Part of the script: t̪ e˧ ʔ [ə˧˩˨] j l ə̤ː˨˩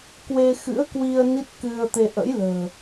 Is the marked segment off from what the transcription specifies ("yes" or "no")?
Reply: yes